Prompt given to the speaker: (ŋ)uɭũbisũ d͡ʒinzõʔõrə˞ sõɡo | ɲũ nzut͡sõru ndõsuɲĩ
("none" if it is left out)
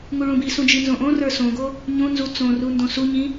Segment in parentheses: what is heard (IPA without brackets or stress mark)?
ŋ